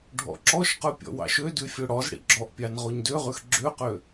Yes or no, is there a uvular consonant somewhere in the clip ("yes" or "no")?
yes